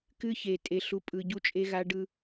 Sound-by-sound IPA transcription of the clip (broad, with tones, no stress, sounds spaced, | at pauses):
k ɨ˦ ç e˨ tʼ e˨ ɬ u˨ pʼ ɯ˨ ɟ u˦ t͡ʃʼ e˦ ɣ a˦ ɖ ɯ˦